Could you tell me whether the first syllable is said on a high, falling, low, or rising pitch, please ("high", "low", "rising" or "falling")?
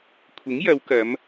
rising